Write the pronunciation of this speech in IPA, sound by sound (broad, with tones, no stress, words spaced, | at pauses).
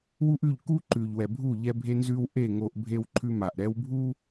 wu˦ʔʉ˦˨ʎ ku˦ǃʉ˨ʎwɛ˨bʱu˦˨ ʎɛ˦bʱe˦nzʉ˦w ʔe˦˨ ŋo˦ʔbʱe˦wǃʰʉ˦ma˨ʔ ɾɛ˦wbʱu˦